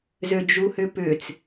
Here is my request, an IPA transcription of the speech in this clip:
z ø d͡ʒ u h ʏ p ʏ t͡s

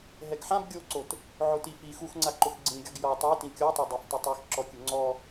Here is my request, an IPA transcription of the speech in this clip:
ɦ ɛ ɡ ħ ã b ɡʲ o ǀ o t | ʕ o t i f i x u x ŋ͡ǀ a ǃ ʊ x ɡ͡ǀ ĩ ɡʲ ɔ ɡ j ɔ tˤ ɛ t ĩ kʲ ɔ tˤ o dˤ e f t ʊ tˤ e x ǁ ɔ kʲ ʊ ŋ͡ǀ ɔ

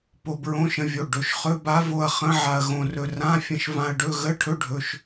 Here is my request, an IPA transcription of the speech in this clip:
p o˧ b ɹ õ˧˥˧ ʃ ə̃˧ vʲ o˩˧˩ ɖ ɵ˩˧˩ ʃ χ ɵ˧˥˧ b a˦˥ v o˧ ɐ̯ χ ə̃˦˥ ʕ a˧ ɐ̯ ɣ õ˧ r ɵ˧ r ã˧˥˧ fʲ ə̃˧ ʃ v ã˧ ɐ̯ ɖ ɵ˧˥˧ ɣ ə˧˥˧ ʈʰ ɵ˦˥ ɖʱ ɵ˩˧˩ ʃ

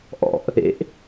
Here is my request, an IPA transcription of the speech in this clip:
ʔ ɔ̰ ʔ | ḛ ʔ

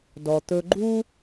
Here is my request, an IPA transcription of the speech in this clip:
d ɔ˩ t̪ ɵ˧ ɡ͡ǃ u˥

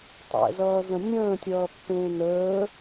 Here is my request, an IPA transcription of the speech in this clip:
tˤ ɛ̰ z ʌː z ə̃ nʲ ə̃ː tʲ ʌː pː ẽː n əː

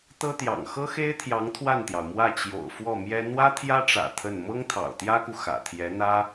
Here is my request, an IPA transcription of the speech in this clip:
t̪ ɤ˥ t̪ j ɑ̰˨˩ ŋ x ɤ˥ x e˥ ɪ̯ t̪ʰ j ɑ˧˥ ŋ t̪ʰ w a˥˩ n t̪ j ɑ˩ ʊ̯ m w ä˥˩ t͡ɕ j o̰˨˩ ʊ̯ f w ɔ˥˩ m j ɛ˥ n̪ w ä˥ t̪ʰ j ä˥ ʈ͡ʂ ä̰˨˩ t̪ʰ ə˥˩ n m ɤ˥ ŋ t̪ʰ ɑ̰˨˩ ʊ̯ t̪ j ä˥ k u˨ x ä̰˨˩ t̪ʰ j ɛ˧˥ n̪ ä˥

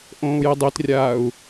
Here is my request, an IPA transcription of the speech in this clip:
ʔ õː u̯ j i dˤ i t rʲ aː u̯

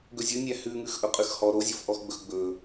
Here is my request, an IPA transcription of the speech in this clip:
ɡ ɵ zʲ ɵ nʲ æ h ʉ ŋ ʉ x ʔ ɵ qʼ ʉ x h ɔ ɾ o zʲ o f ʔ ɔ x ɡ͡b ɵ x ɡ͡b ɵ

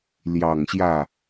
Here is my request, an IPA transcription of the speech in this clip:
l j ɑ˨˩ ŋ ɕ j ä˥˩

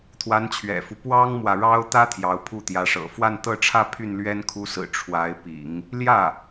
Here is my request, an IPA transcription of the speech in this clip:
t̪ʰ w a˧˥ n t͡ɕʰ ɥ ɛ̰˨˩ f u˦ p w ɑ˥ ŋ m w ä˨ ɻ ɑ˥ ʊ̯ t̪ ä˥ t̪ʰ j ɑ˧˥ ʊ̯ pʰ u˥˩ t̪ j ä˧˥ ʂ ɤ̰˨˩ f w a˥˧ n t̪ ɤ˥˧ ʈ͡ʂʰ ä˥˧ pʰ y˥˩ n l ɥ ɛ˥ n kʰ u˧˥ s ɹ̩˨˩ ʈ͡ʂʰ w a˧˥ ɪ̯ p ḭ˨˩˦ ŋ | l j ä˥˩

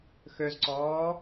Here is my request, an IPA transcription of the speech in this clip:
x ø z ǀ ɔː

